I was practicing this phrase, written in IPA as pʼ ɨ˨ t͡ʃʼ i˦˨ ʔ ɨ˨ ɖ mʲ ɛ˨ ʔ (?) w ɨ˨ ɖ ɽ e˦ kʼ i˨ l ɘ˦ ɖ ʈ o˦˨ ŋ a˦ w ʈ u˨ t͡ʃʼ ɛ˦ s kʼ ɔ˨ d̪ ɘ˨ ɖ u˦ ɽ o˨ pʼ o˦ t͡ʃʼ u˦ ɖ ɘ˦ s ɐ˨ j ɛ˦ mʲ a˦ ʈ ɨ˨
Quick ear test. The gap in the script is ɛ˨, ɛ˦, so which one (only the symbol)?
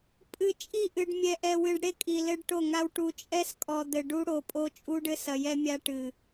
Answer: ɛ˨